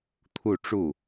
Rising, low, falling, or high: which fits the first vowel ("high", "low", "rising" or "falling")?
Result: falling